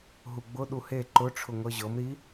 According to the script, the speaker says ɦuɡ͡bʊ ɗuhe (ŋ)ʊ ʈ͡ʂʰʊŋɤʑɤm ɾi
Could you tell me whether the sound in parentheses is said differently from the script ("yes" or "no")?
yes